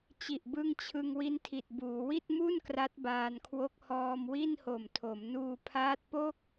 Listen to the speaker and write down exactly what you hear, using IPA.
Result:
t͡ɕ i˨˩ ʔ b ɯ˧ ŋ t͡ɕʰ ɯ˧ ŋ w i˦˥ n tʰ i˨˩ t̚ b uː˩˦ w i˥˩ t̚ m u˥˩ n k r a˦˥ t̚ b aː˧ n kʰ w o˦˥ k̚ h ɔː˧ m w i˥˩ n h o˨˩ m tʰ o˩˦ m n uː˧ pʰ aː˦˥ t̚ p o˥˩ k̚

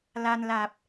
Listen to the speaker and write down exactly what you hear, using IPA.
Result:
l a˧ n l a˨˩ p̚

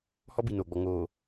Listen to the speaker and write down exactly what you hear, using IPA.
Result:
h ɔ˦ b i˨ n oː˨ ɡ͡b ɔ˨ ŋ oː˨

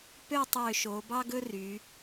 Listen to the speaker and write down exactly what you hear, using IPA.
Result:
p ø˥˧ tˤ ø˧˩ ʃ o˩˧ b ɑ˥ ɡ ɵ˥ r y˩˧

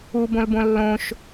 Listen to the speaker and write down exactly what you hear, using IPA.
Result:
u b õ l b õ lː õ ʃ

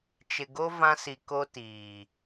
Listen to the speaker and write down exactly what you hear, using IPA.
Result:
t͡ʃ ɪ˨ ɡ o˦ v ã˦ s i˨ k o˦ t iː˨

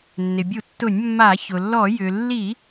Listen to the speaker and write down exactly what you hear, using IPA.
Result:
nː ɪ˩ bʲ u˧˩˧ tː ʊ˧˩˧ nʲ mː a˧˩˧ ç ʊ˩ lː ɔ˧˩˧ j ʏ˩ lː i˧˩˧

